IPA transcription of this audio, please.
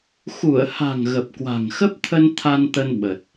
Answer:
x u˧˩ ə̯ h a̤˨˩ ŋ ɣ ə˨˩ p̚ k w a̤˨˩ ŋ x ə˦˥ p̚ t̪ʰ ə˧ n t̪ʰ a˧ n t̪ ə˧ n ɓ ə˨˩ t̚

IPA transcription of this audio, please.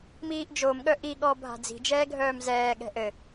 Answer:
m iː ʔ d͡ʒ o m ɠ œ ʔ i ɠ ɔ bʱ a̤ d͡z i̤ d͡ʒ ɛː ɡʱ œː m z ɛː ɠ ɛ̤ ʔ ɘ

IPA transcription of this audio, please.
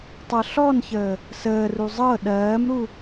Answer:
tˤ ɤ ɬ ɔ n ç əː | s əː r u zˤ ɤ ɗ ɜː m ɾ u

